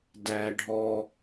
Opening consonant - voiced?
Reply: yes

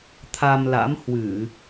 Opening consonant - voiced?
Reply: no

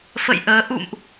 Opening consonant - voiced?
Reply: no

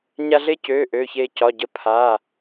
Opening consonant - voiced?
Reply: yes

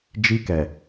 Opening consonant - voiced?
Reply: yes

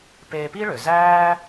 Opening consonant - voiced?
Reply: no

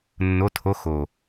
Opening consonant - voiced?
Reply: yes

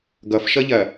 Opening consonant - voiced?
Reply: yes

